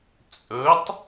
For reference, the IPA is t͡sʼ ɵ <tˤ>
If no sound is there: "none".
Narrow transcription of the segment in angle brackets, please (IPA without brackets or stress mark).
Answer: tˤ